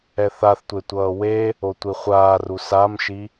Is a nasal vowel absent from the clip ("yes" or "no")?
yes